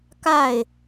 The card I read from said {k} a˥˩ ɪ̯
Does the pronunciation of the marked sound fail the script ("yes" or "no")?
no